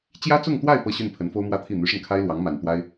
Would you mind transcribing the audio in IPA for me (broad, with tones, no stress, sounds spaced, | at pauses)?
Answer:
t͡ɕ j ä˥ t͡s ʊ˥˧ ŋ t̪ w a˥˧ ɪ̯ p ɤ˥˧ ɕ y˥˩ n pʰ ə˧˥ n f o˥ ʊ̯ m w ä˥ t̪ʰ i˥˩ n̪ y˧˥ ʂ ə˧ n kʰ a˥ ɪ̯ l w ɑ˧˥ ŋ m a˨˩ n t̪ w a˥ ɪ̯